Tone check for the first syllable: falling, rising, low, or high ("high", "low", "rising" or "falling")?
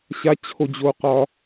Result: high